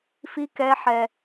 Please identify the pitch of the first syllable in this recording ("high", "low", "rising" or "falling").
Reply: high